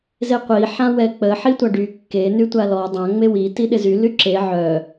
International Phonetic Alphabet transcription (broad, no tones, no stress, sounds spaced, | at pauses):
z e qʷ i ħ ã w ɛ k͡p ə ħ i tʷ a ɖ y kː e n y tʷ a l ɔ dˤ ã ŋ͡m e w i t i ɗ ɪ z y l y ǁ e ʕ œ